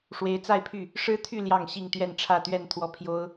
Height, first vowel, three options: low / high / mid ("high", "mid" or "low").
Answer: mid